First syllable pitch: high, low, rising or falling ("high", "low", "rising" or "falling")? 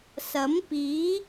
rising